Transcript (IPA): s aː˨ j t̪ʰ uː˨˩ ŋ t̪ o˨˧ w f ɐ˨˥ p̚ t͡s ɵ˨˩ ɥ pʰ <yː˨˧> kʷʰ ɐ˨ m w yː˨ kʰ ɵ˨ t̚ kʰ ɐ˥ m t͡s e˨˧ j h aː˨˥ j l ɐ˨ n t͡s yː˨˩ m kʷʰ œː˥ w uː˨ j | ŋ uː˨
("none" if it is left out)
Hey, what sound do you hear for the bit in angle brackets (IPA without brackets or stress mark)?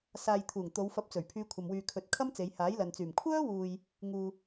yː˨˧